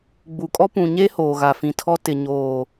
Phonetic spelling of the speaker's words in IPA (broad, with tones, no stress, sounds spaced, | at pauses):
ɡ͡b u˨ kʼ ɔ˦ p ũ˨ ɲ e˦ h oː˨ ɣ a˨ f ĩ˨ tʰ ɔ˦ t ɪ˨ ɲ oː˨